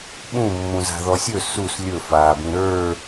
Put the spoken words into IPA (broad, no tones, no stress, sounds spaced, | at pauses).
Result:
ɓ ũ mː ũ z a̤ ð ɔ sʲ ɵ s u s lʲ ɵ f aː b ĩ ɾ ə˞